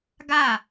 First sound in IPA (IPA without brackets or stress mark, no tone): ɡ